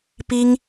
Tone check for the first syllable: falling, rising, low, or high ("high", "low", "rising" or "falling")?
high